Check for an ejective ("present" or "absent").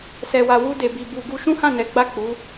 absent